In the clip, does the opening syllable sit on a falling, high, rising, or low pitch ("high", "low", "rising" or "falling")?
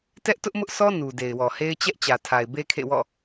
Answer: high